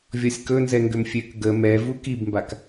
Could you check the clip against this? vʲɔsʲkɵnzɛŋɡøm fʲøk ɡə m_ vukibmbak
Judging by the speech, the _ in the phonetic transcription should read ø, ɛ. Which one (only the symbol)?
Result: ɛ